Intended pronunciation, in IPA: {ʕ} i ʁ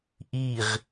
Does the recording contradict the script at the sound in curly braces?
yes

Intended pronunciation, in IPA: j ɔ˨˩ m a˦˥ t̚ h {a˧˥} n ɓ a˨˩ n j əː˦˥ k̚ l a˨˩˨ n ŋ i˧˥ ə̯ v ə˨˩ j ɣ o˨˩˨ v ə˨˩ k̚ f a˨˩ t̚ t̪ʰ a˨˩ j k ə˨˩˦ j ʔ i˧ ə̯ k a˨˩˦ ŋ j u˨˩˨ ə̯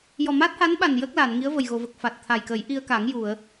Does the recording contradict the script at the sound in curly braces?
no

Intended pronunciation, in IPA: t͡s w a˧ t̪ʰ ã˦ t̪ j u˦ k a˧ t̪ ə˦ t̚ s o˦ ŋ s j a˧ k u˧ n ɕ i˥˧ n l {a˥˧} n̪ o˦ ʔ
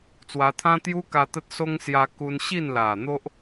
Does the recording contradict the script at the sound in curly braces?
yes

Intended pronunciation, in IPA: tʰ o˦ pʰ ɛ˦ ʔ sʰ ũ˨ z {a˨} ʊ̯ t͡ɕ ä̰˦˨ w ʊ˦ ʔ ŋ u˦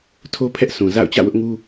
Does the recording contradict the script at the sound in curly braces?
yes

